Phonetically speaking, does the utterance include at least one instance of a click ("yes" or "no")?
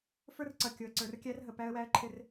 yes